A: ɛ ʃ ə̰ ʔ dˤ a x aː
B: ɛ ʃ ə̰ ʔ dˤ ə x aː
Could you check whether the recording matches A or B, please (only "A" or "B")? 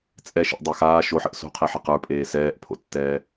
A